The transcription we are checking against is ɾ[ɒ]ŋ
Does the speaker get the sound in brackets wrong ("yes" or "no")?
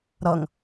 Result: yes